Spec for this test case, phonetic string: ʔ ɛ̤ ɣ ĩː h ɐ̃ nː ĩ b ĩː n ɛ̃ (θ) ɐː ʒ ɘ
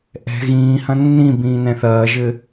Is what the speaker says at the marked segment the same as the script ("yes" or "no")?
yes